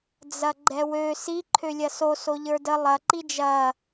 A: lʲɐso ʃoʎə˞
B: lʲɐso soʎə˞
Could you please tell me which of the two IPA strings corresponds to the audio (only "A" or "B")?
B